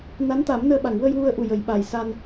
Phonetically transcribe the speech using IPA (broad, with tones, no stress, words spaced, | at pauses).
na˧˥nt̪a˨˩˦mnəː˧ɓa˨˩˨ŋ wə˧jwu˧ə̯ʔu˨˩ jə˨˩˦jɓa˨˩j sa˧n